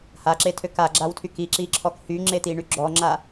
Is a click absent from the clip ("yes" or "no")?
no